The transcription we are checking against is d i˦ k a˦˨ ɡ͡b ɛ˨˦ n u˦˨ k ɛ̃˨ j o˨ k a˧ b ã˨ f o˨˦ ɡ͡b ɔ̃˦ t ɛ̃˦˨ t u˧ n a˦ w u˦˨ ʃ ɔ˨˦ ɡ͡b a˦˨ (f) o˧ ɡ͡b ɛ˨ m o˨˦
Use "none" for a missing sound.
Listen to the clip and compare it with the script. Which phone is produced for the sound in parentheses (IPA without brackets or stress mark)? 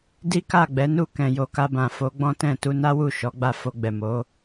f